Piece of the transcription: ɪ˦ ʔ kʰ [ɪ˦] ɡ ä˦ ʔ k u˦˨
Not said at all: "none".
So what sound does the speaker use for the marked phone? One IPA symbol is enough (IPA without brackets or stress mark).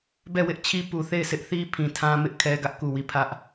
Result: ɛ˦